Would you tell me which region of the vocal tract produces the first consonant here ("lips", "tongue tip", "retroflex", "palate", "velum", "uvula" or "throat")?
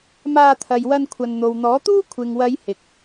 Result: lips